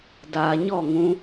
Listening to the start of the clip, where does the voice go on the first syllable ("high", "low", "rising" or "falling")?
low